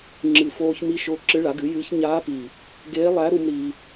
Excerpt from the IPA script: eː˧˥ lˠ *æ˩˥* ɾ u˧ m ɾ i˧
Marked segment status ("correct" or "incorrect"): incorrect